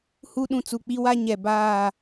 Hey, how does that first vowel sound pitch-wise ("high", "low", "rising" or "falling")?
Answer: high